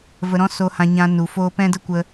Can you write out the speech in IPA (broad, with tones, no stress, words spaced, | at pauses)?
və˧ɾɔ̃˦so˧ hã˧ɲã˧ nu˨ foː˧pɛ̃˦də˦ kʷə˦